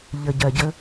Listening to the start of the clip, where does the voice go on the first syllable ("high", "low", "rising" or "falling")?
low